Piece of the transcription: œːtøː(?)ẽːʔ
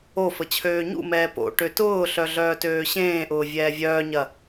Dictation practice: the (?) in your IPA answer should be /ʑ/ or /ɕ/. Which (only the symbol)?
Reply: ɕ